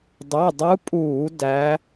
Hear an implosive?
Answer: no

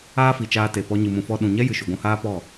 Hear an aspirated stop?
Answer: no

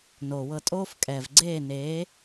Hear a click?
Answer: yes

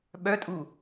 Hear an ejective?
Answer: yes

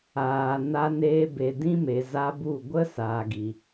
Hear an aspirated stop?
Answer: no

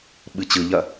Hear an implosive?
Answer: yes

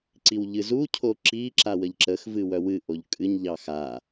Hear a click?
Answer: yes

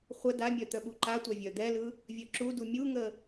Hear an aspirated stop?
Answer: no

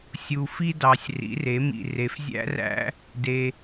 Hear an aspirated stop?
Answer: no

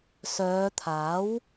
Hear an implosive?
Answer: no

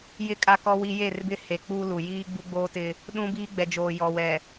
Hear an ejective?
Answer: yes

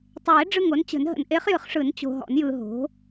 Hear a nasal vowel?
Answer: no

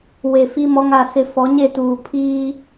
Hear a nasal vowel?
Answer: no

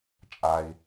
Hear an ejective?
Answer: yes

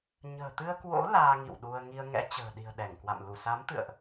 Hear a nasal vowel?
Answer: no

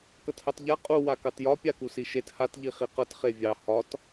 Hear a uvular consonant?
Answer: yes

